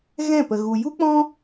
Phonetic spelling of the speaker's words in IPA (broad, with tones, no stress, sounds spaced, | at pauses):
ɣ ɛ̃˦˨ p ə˨ ɣ u˨ j u˦ k͡p ɔ̃˦